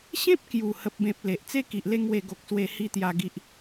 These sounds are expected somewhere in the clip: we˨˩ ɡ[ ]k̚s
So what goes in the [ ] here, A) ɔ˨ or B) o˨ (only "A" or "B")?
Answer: B